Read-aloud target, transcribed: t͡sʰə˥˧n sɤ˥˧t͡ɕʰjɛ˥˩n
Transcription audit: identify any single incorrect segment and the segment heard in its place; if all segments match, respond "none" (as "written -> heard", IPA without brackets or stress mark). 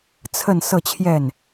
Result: none